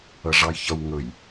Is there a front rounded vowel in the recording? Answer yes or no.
no